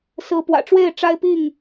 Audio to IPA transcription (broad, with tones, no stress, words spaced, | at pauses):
sɹ̩˨˦pwä̰˨˩ʈ͡ʂwe˥˨ɪ̯ ʈ͡ʂa˦ɪ̯pi˥˨ŋ